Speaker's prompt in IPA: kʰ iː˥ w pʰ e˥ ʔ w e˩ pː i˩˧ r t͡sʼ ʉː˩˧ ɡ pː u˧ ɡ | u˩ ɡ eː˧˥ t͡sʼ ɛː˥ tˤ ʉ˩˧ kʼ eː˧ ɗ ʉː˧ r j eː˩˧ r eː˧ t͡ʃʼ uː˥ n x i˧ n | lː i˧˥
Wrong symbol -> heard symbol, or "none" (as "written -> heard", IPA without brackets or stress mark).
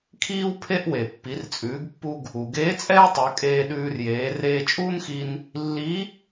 none